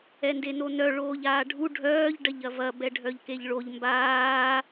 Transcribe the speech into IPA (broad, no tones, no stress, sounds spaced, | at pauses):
ɛ n d e n o n œ ɭ oː ʎ aː ɖʱ u ɖʱ œː ʎ ɖ ɐ ʎ ɐ v ɐ b ɛ ɖʱ œ ʎ k e ʎ ɭ o ʎ m b aː